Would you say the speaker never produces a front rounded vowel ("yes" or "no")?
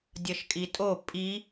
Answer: yes